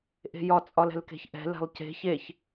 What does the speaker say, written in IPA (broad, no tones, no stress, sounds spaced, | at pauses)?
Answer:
ʔ e̤ j ɒ t͡sʼ ɒ l ɛ̤ l k e̤ ç ʔ ɛ̤ l ɛ̤ lˠ c e̤ ç e ç